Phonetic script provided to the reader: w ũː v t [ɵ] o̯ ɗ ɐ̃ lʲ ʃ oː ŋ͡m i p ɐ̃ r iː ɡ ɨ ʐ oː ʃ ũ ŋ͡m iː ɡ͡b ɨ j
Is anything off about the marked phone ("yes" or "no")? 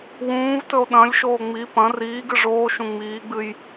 no